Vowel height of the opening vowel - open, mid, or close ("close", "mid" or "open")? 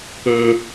mid